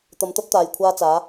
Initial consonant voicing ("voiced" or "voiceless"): voiceless